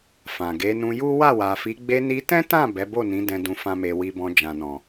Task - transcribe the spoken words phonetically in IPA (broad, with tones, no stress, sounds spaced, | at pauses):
f ã˨ ɡ e˨˦ n ũ˧ j u˦ w a˦˨ w a˨ f i˨˦ ɡ͡b e˧ n i˧ t ɛ̃˦ t ã˦˨ b ɛ˨˦ b o˦˨ n ĩ˨˦ d ɛ̃˧ d ũ˧ f ã˦ m e˧ w i˧ b ɔ̃˧ d͡ʒ ã˨ n ɔ̃˨